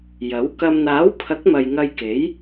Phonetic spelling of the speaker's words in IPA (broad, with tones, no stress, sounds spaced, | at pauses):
j ɐ˨˥ w k ɐ˨ m n̪ aː˨˥ w pʰ ɐ˨˥ k̚ m ɐ˨ j ŋ ɐ˧ j k e˨˥ j